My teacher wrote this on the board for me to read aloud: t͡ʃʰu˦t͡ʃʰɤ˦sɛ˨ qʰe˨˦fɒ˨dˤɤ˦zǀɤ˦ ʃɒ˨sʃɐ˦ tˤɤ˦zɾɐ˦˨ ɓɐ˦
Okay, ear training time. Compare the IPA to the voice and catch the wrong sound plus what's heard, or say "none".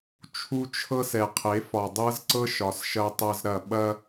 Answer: none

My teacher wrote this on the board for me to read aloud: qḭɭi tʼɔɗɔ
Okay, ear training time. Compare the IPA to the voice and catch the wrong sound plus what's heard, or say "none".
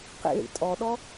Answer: i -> ḭ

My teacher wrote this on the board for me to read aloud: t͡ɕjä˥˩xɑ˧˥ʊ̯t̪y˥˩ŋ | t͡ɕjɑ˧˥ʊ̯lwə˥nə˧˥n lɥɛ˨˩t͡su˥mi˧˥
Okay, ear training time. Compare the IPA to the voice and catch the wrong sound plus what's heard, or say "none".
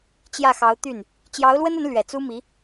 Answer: ŋ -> n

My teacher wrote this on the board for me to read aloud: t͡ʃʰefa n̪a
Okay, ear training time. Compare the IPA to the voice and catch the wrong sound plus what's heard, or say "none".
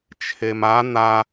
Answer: f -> m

